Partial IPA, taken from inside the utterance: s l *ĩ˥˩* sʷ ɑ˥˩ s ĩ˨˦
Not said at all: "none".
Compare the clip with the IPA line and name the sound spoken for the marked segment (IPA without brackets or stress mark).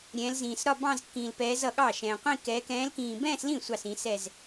ĩ˥˩